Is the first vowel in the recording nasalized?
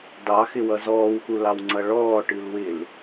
no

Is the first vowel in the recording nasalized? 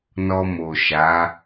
no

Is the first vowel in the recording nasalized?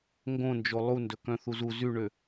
yes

